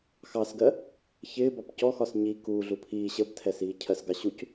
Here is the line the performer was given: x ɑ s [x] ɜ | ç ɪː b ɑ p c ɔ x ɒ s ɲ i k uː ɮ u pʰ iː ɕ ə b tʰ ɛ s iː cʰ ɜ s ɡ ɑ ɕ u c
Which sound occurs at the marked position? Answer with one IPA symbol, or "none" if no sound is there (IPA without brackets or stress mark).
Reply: ɡ